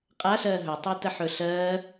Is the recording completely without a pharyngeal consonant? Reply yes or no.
no